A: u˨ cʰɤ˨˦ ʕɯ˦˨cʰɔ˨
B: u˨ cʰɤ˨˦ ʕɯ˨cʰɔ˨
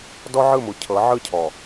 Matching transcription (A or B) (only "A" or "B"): A